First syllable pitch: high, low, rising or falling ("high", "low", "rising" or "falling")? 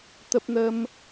high